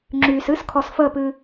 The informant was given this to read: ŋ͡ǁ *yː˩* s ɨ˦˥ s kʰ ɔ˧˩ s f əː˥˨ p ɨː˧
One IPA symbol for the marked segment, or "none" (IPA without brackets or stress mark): yː˩